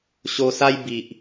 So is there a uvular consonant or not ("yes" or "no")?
no